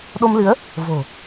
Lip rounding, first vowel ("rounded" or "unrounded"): rounded